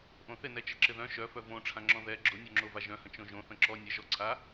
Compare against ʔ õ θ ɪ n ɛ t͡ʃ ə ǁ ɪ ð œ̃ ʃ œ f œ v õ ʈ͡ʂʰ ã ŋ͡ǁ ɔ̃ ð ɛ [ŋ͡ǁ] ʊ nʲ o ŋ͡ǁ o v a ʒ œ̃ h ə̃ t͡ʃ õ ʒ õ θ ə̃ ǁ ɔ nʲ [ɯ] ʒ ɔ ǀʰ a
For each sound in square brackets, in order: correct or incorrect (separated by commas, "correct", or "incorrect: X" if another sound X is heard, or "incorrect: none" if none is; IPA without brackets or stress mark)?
incorrect: ɡ͡ǁ, incorrect: ə